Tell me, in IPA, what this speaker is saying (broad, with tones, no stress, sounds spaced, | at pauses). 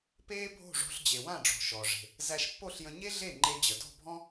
p eː˥ bʱ o̤˥˩ ʐ o̤˧ ɬ d͡ʑ e˩ w ã˥˩ ɖ͡ʐ ɔ̤˩ ʃ ɔ˩ ʐ e̤˩ | z æ˧ ʃ pː o˥˩ ɬ j ə̃˧ ɲ e˥ ɮ e˥˩ ŋ͡ǃ e˧ d͡ʑ ə˩ d ɔ̤˥˩ bʱ ɔ̃˥